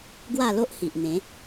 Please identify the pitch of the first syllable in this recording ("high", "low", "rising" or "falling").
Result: falling